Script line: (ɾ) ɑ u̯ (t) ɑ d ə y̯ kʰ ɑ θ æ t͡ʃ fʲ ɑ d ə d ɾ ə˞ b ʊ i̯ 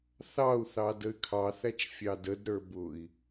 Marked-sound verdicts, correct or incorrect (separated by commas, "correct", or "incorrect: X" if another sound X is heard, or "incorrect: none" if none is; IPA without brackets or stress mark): incorrect: θ, incorrect: θ